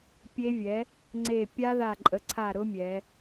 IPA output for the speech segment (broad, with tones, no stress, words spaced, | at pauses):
pʲe˦˥vʲɛ˩˥ | ŋ͡ǀe˧˩pʲa˦˥ða˧˩ ǃʼə˩˧ǀʰa˧˩ ɾʊ˦˥mʲɛ˩˧